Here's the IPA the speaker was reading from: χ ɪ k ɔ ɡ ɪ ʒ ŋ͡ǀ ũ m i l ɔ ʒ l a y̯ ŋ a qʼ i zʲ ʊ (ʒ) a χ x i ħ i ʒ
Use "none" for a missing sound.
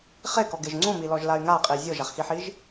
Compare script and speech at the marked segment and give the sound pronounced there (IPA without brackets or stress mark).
ʒ